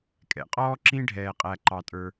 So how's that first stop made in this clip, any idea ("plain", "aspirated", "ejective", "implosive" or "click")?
ejective